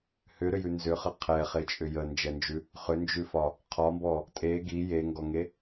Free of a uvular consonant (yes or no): no